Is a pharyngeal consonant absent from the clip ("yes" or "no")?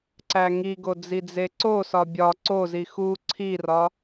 yes